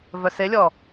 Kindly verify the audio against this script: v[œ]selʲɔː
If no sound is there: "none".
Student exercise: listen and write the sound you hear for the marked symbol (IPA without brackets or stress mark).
œ